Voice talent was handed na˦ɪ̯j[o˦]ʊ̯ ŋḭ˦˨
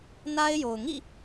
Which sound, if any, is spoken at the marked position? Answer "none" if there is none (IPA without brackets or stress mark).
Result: o˨